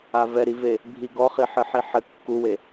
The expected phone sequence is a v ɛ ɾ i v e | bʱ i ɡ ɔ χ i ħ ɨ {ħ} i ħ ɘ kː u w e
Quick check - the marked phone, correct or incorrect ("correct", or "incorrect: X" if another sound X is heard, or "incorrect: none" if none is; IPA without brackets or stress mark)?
correct